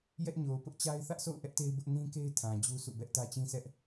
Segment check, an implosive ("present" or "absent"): absent